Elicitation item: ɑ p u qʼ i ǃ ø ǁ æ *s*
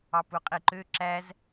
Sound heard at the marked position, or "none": z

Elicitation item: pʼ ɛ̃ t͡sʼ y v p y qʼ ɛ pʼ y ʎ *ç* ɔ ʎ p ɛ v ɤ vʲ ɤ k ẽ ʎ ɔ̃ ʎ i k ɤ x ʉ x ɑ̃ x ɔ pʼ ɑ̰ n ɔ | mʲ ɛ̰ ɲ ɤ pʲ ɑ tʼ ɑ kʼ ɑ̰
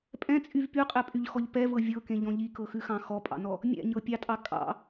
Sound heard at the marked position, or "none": x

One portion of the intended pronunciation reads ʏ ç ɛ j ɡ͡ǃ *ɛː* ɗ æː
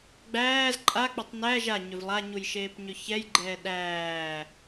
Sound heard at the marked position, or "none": ɛː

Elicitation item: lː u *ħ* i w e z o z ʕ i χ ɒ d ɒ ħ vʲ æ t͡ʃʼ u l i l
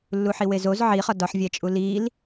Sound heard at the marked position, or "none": ħ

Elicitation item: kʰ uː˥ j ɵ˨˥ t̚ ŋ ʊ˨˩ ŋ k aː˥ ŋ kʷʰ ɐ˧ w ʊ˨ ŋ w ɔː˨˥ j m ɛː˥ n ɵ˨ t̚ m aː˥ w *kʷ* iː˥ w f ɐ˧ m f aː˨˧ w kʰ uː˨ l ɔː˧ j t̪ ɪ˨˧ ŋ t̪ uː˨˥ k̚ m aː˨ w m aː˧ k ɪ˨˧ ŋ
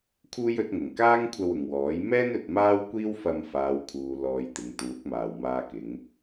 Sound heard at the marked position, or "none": kʷ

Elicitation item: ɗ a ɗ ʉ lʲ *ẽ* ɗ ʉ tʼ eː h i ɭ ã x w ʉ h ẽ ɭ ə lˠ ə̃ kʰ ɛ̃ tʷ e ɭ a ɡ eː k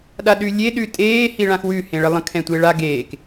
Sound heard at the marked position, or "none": e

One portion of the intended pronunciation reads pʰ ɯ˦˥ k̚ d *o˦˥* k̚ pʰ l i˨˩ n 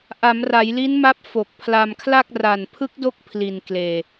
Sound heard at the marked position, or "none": o˦˥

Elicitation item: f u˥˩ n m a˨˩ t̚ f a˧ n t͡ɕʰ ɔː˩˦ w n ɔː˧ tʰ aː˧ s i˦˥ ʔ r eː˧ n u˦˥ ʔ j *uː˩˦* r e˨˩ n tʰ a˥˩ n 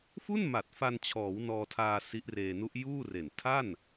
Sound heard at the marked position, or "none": uː˥˩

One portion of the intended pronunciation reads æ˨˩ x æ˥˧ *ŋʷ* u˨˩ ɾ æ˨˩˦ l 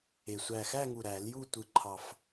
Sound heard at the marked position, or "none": ŋ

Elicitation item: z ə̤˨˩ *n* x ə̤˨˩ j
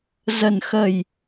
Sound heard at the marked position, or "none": n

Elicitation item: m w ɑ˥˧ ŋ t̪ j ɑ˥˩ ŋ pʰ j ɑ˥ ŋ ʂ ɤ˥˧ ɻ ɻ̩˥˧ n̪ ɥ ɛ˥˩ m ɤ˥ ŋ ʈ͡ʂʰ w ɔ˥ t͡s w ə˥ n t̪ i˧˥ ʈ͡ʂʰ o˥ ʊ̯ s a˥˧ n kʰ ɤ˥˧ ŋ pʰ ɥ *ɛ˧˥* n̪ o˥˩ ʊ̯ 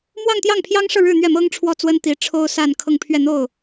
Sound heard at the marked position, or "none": ɛ˥˧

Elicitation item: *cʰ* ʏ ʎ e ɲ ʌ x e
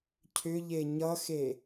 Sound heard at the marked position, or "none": cʰ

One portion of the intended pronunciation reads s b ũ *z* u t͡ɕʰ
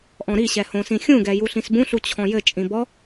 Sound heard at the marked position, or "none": ɬ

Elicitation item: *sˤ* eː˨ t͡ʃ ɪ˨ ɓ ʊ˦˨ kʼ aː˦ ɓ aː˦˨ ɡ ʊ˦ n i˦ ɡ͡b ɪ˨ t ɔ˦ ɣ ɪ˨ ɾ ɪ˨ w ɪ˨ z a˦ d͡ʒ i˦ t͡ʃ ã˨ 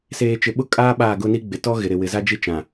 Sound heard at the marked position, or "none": s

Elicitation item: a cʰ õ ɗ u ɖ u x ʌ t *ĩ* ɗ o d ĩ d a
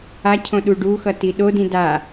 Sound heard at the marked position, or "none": i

